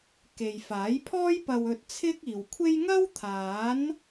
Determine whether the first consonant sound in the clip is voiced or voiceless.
voiceless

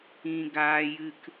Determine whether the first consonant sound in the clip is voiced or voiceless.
voiced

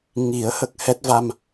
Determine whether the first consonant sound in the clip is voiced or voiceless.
voiced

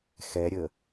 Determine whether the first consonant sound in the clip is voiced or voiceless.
voiceless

